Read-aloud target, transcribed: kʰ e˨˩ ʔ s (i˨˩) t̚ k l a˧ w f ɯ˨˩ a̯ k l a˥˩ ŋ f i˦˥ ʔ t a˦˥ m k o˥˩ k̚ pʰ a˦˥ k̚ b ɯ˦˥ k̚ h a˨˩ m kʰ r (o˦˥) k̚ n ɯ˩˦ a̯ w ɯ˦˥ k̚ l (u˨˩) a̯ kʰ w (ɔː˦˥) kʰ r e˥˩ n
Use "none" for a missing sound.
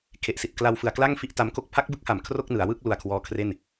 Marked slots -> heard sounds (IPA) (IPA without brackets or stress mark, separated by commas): i˨˩, o˥˩, u˧, ɔː˦˥